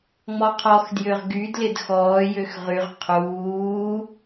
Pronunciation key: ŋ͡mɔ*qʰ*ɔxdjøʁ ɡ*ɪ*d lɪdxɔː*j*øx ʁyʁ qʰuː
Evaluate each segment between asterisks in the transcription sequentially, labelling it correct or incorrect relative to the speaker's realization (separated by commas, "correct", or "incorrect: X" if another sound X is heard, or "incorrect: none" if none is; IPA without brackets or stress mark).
correct, incorrect: y, correct